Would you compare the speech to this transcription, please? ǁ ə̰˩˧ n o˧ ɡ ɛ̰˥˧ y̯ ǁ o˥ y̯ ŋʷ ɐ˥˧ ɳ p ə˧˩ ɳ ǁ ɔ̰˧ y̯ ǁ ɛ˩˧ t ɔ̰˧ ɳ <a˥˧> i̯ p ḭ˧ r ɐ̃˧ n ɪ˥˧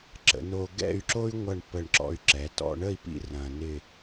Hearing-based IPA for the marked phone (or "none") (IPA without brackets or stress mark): ə˥˧